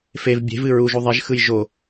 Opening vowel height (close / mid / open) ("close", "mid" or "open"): mid